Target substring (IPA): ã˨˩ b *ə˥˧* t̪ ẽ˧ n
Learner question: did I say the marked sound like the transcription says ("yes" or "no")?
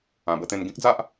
yes